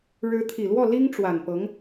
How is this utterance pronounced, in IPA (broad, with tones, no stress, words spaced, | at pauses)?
ɻɻ̩˧˥t̪ʰi˨˩lwɔ˥˩ li˥ŋʈ͡ʂwa˨˩npɤ˧˥ŋ